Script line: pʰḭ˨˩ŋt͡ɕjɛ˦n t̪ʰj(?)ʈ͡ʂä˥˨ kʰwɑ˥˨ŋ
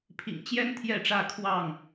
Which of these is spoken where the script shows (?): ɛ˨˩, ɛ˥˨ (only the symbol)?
ɛ˥˨